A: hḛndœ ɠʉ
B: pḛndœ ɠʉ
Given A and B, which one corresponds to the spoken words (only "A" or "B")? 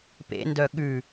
B